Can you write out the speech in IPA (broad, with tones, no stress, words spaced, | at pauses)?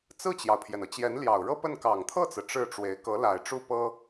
t͡sɹ̩˥˩t͡ɕjɑ˩ʊ̯pʰjɛ˩nɤ˩ t͡ɕjɛ˧˥nljɑ˨˩ʊ̯ɻɤ˥pə˥˩n kɑ˨˩ŋt̪ʰɤ˥˩t͡sɹ̩˩ ʈ͡ʂɻ̩˥˩ʈ͡ʂwe˧˥ɪ̯ kɤ˧˥la˨˩ɪ̯ʈ͡ʂu˥˩pɤ˥